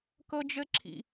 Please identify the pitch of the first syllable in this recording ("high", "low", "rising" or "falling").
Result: high